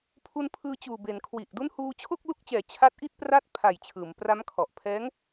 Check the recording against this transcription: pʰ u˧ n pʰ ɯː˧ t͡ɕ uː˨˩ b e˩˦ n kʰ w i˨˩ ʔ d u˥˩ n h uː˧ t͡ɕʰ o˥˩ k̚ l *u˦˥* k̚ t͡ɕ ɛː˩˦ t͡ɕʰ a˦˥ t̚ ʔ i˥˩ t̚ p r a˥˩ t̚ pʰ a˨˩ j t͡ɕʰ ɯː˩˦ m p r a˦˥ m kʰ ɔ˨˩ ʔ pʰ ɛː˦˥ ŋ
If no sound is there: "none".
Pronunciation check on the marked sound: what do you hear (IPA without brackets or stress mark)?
u˦˥